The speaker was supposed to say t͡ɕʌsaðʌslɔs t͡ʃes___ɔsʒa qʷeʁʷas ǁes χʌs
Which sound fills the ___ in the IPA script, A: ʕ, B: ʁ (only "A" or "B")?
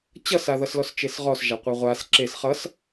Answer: B